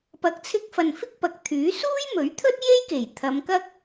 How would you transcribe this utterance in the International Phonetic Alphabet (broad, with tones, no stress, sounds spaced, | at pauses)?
p ɐ˨˥ k̚ t͡sʰ ɪ˧ k̚ f ɐ˨ n f ɪ˥ k̚ p ɐ˨˥ k̚ t̪ʰ yː˨˥ s uː˥ j m ɵ˨˥ ɥ t̪ʰ ɵ˥ t̚ j e˥ j k e˨˩ j t̪ʰ ɐ˨˧ m k ɐ˥ k̚